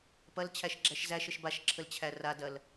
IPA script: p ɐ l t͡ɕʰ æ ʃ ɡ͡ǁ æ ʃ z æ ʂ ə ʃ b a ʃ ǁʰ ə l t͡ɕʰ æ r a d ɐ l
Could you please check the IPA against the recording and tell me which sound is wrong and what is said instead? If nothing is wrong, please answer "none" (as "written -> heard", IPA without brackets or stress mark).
ʂ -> ʃ